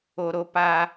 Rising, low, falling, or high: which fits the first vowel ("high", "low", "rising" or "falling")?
low